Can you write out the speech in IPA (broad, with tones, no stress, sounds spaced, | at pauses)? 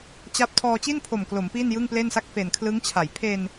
t͡ɕ a˥˩ p̚ tʰ ɔː˧ t͡ɕ i˥˩ n pʰ o˨˩ m k l o˩˦ m p iː˥˩ n j ɯ˥˩ ŋ p l e˥˩ n s a˥˩ k̚ f e˨˩ n kʰ l ɯ˦˥ ŋ t͡ɕʰ a˩˦ j pʰ e˧ n